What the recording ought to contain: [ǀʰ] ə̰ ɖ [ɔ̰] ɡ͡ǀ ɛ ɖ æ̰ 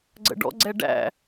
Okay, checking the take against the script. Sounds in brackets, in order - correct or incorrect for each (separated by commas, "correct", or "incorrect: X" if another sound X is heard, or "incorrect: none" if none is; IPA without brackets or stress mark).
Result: incorrect: ɡ͡ǀ, correct